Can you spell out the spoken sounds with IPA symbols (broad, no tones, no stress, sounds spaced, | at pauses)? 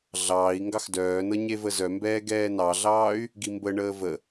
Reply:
ɮ ɑː i̯ ŋ ɡ ɑ x d œː n ɤ ɲ e v ə z œ m b ɛː ɡ ɛː n ɑ ɮ ɑː y̯ | ɡ i m b ə ɳ əː v ə